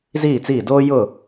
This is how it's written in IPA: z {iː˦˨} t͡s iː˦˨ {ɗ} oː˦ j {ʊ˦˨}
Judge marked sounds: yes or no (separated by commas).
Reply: yes, no, yes